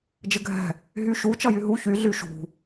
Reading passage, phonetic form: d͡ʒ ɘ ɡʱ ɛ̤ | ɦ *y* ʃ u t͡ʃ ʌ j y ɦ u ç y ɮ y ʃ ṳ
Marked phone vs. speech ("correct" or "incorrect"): correct